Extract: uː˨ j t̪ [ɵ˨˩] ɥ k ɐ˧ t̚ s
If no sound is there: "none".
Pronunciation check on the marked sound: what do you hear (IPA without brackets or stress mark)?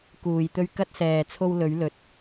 ɵ˧